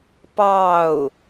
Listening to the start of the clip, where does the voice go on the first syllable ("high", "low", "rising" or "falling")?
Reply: falling